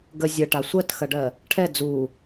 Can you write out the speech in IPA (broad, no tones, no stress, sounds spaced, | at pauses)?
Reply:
ɡ ə zʲ ɐ ʈ a sʷ ɜ t x ɐ ɖ ɜ | ʈʰ ɛ d͡z u